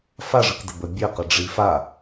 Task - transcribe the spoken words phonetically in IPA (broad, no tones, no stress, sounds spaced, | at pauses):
f a ʐ ɯ k d ə b ə bʲ ə q ə ɖ͡ʐ i f a